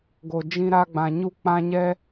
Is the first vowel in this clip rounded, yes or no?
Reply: yes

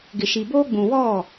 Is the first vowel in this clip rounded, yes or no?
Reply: no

